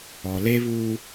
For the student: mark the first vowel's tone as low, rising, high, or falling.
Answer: low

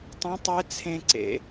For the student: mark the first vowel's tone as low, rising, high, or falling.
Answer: rising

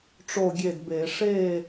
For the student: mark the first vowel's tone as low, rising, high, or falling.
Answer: falling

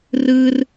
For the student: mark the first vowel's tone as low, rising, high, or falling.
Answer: high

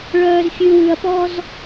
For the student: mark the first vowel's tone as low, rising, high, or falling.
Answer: low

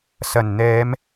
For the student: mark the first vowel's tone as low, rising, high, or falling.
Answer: low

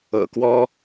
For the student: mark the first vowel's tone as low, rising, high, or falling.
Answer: low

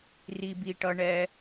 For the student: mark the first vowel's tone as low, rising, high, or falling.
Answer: low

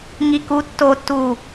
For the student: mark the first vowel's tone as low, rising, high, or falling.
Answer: low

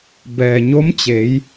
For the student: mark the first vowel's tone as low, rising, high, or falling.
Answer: low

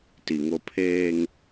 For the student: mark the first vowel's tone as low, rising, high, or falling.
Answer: low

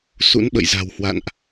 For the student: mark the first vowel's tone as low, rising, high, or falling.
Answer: rising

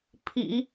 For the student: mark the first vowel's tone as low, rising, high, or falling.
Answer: low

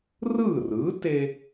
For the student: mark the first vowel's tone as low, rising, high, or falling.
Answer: falling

